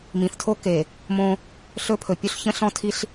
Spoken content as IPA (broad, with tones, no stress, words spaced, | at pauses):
mĩ˨θtʰo˦ ke˨ | mõ˦ | ɬɵ˦pʰɵ˨ pʲu˦ɬçə̃˦ɬɔ̃˦ tʰi˦ɬ